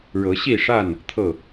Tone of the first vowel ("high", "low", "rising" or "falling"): rising